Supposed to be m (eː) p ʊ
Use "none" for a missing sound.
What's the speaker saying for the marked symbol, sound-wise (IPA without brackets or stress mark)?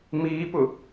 iː